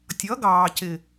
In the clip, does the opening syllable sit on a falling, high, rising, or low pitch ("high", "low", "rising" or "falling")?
rising